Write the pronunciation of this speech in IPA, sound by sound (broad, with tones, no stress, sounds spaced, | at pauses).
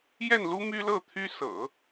j ɛ˥˩ n l u˥ m y˥ l ɤ˥˩ t̪ʰ y˥ s ɤ̰˨˩˦